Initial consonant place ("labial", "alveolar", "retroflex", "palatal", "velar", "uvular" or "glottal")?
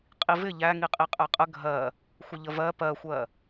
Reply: uvular